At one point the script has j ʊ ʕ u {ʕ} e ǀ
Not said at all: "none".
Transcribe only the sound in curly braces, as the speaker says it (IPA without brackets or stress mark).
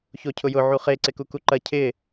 χ